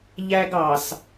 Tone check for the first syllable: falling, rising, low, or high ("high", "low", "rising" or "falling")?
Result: high